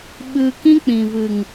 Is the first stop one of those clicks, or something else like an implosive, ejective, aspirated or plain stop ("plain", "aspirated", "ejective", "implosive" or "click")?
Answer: implosive